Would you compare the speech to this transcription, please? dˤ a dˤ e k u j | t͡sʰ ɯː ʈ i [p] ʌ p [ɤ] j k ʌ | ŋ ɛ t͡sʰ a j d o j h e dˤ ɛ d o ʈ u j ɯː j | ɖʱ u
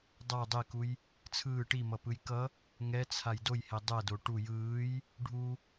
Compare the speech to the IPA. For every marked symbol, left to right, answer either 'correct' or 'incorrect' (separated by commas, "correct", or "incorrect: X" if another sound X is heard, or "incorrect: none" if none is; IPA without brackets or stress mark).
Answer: incorrect: m, incorrect: ɯ